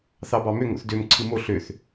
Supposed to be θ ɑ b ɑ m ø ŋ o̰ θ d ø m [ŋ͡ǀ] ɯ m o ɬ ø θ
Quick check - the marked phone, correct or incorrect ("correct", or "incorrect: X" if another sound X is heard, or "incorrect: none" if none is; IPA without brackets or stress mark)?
incorrect: ǀʰ